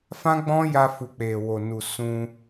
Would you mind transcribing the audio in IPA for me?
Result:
f ã˦ ɡ͡b ɔ̃˦ j a˧ f u˨ k͡p e˨ w o˨ n u˨ s ũ˧

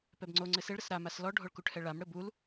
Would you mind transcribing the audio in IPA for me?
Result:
p ɛ b ŋ͡ǀ o ŋ͡ǀ ɘ s e ɭ ɾ ɘ s ɾ a m a s l ɔ ɖʱ o ɭ k u ʈʰ ɛ ɭ a m ɽ ɘ b u l

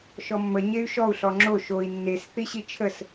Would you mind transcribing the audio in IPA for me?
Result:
ʃ ɔ mː ə ɲ e y̯ ʃ ɔ u̯ ɬ ɔ ŋ͡ǁ o ʃ o i̯ nː e s θ i ɕ i t͡ʃʰ ə s

